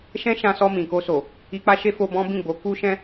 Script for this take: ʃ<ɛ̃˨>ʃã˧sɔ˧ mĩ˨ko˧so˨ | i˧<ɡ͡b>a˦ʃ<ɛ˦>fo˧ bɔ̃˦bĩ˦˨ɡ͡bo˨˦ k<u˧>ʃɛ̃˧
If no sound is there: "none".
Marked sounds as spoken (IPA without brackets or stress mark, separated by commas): ɛ̃˦, k͡p, e˦, u˧